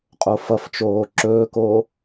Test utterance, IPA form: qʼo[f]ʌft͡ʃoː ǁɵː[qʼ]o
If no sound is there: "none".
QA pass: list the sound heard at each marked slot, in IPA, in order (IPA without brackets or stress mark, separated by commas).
f, k